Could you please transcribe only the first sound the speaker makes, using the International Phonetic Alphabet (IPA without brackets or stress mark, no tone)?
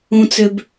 ũ